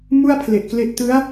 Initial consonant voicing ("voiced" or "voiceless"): voiced